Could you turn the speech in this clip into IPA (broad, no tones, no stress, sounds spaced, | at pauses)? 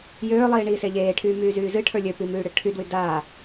j øː lˠ iː ɳ iː s e ʎ eː ʈʰ yː m yː z yː z ɨ ʈʰ ə˞ lʲ ø p i m yː ɽ ɨ ʈʰ y d w y d aː